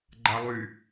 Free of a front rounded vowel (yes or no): no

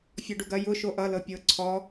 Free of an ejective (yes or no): yes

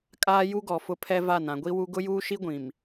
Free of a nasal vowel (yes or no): no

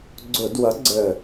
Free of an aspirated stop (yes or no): yes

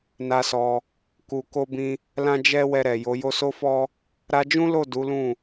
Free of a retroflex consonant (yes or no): yes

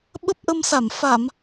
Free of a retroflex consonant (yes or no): yes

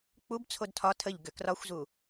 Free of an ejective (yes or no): yes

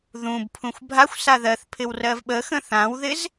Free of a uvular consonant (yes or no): yes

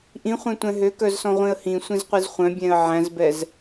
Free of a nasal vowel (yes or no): no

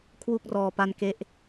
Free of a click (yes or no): yes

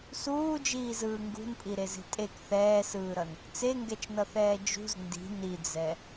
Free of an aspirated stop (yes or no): yes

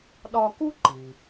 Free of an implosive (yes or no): no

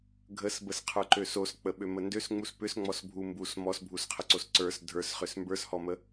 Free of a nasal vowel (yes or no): yes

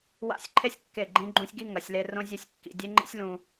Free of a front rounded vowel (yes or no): yes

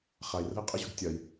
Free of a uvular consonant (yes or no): no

